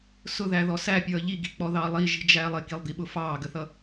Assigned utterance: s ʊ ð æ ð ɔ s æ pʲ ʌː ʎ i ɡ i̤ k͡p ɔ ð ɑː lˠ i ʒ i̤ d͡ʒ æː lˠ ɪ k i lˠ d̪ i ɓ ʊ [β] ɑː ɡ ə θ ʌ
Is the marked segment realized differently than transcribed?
yes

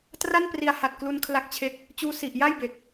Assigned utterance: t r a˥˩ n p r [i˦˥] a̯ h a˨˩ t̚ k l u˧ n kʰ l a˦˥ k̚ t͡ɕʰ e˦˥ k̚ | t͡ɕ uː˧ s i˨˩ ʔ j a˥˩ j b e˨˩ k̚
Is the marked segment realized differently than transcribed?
yes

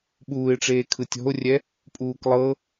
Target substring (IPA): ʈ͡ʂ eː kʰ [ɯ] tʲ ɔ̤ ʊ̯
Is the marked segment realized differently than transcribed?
no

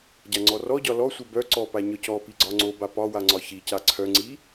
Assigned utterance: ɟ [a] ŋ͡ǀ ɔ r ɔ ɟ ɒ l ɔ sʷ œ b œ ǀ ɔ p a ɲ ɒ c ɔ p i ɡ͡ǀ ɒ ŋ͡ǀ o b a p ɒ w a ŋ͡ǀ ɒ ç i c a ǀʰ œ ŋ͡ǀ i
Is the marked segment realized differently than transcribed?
no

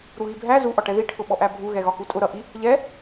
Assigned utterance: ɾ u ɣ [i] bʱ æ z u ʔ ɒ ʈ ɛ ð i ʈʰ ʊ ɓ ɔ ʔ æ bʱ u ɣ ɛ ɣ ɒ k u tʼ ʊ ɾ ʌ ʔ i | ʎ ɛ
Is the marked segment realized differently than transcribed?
no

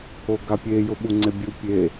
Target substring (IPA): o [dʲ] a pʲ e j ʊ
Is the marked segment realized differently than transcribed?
yes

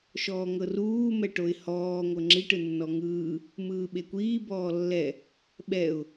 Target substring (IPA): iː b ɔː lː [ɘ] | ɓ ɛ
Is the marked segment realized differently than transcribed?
yes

